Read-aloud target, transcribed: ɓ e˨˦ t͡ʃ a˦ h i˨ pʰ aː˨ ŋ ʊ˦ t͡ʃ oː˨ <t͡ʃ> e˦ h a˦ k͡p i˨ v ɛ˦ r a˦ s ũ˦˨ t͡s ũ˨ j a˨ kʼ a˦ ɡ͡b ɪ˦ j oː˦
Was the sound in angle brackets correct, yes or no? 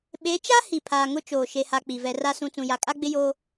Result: no